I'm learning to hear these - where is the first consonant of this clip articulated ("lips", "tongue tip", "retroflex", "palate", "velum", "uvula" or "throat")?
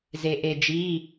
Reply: tongue tip